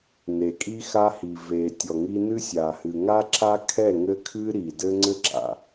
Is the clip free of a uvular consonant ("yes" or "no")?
yes